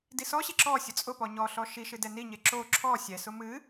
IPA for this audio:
d i s ɔ ɕ i ǁ ɔ sʲ ʊ t͡sʼ ʊ p ɔ ɲ ɔ ɬ ɔ ʃ i ʃ ɨ d ɛ n i ɲ e ǁ o ǁʰ ɔ sʲ ɛ s ʊ m ɨ

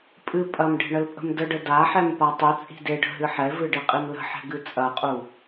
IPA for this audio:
pʼ ɨ pʼ ɐ m ɖ e̤ ɳ ə l pʼ ə̤ m d ə ɖ ə d a ħ ɛ m p a tˤ u t͡sʼ i̤ d e ɖ ə̤ ɦ ɨ ħ ɛ v ɨ ɖ i qʼ i m l ə̤ ħ ɛ̤ ɡ ɨ t͡sʼ ɐ qʼ u

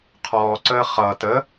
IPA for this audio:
qʰ ɔː ǀ əː χ ʌ t ə

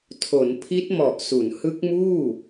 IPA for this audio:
tʰ o˩˦ n pʰ i˦˥ t̚ m ɔ˨˩ ʔ s u˩˦ n h ɯ˦˥ k̚ m uː˥˩

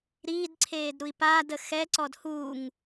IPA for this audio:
ɾ iː d ǀʰ eː d ɾ u i̯ p aː d ə x ɛ ǀ ɔ d h uː ŋ

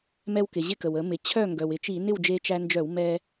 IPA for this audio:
m ɛ˧ w k ɪ˩ ʑ ɪ˧ k ə˩ w ə˧˩˧ m ɪ˩ t͡ɕʰ œ˥˨ ŋ ɡ œ˩ w ɪ˧˩˧ t͡ʃ i˧˩˧ n ɪ˥˨ w d͡ʒ e˧ t͡ʃ æ˧ n d͡ʒ œ˧˩˧ w m ɛ˧

